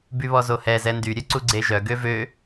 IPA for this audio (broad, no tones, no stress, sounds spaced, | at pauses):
b y β ɔ z o h ɛ z ɛ n d y ɾʲ œ ǀ u ɡ͡ǀ e ʒ œ ɡ ø v ø